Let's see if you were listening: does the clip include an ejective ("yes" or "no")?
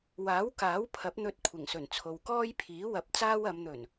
no